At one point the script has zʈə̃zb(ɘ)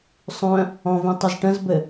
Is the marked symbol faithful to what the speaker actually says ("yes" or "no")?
yes